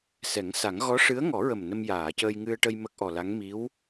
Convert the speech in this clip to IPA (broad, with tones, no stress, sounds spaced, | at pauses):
s ɛ˨˩˦ ŋ s a˨˩˦ ŋ ɣ ɔ˧˥ ʂ ɨ˧˥ ə̯ ŋ ɔ˨˩˦ ɹ ə˨˩ m n ə˧ m j aː˨˩˨ c əː˧ j ŋ ɨ˧ ə̯ ʈ ə˧ j m ə˦˥ k̚ ʔ ɔ˨˩ l a˧˥ ŋ m i˧˥ w